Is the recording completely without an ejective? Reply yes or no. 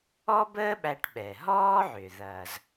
yes